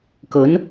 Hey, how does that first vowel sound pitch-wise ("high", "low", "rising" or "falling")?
rising